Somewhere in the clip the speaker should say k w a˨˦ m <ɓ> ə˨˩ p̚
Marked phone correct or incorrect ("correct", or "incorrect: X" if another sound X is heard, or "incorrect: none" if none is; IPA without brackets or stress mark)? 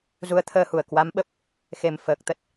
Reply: correct